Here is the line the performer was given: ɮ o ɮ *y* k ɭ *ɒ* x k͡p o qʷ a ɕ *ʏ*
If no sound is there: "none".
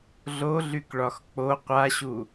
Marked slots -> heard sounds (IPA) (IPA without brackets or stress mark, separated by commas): y, ɒ, u